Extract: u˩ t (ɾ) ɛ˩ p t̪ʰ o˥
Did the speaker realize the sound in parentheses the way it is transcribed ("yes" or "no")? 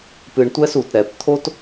yes